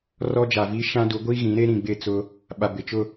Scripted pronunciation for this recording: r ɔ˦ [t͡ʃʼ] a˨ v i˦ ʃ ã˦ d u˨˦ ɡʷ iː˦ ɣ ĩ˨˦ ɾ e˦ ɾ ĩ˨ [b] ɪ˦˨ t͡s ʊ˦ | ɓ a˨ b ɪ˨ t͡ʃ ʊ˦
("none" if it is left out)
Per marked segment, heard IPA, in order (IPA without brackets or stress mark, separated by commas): d͡ʒ, ɡ͡b